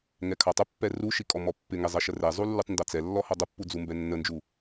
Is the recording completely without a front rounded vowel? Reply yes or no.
yes